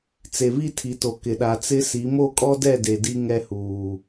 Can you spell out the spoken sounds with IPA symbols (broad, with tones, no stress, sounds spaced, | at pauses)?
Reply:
t͡s e˨ β i˦˨ tʰ i˨ t o˨ k ɪ˨ ɗ a˨ t͡s ɪ˦ s i˨˦ m o˦˨ kʼ ɔ˦ d ɛ˦˨ d e˨ d i˦ ŋ ɛ˦ h uː˨